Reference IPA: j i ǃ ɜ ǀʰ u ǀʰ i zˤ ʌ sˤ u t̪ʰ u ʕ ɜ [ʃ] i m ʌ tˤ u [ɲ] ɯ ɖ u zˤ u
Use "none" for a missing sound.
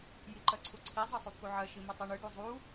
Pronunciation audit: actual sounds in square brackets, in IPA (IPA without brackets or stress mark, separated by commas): ʃ, ɳ